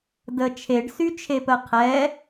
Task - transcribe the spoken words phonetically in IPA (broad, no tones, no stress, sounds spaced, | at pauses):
d ə t͡ʃʰ e ɖ s y t͡ʃʰ e p ə qʰ ɛ